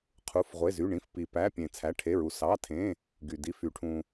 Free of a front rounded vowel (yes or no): no